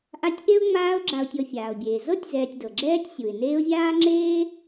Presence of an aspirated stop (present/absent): absent